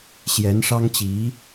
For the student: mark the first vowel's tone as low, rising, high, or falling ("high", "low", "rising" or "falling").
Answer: rising